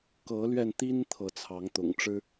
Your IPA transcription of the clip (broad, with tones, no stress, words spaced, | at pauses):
kɤ˨˦lɥɛ˧nt̪i˦n t̪ʰɤ˨˦t͡sʰɑ˨˦ŋt̪ʊ̰˨˩ŋʈ͡ʂɻ̩˦